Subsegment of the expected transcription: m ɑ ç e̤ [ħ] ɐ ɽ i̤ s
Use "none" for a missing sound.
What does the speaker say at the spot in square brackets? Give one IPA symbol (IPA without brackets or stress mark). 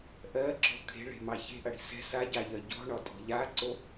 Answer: ʔ